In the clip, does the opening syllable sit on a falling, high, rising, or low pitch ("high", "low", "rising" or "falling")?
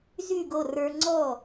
falling